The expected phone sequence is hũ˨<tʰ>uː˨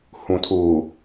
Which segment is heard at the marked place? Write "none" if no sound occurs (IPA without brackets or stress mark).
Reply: tʰ